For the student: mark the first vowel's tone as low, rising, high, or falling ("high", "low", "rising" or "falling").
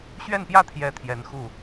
falling